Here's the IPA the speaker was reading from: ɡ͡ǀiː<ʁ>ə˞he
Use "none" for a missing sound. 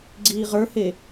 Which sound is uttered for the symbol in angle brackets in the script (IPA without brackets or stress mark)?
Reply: ʁ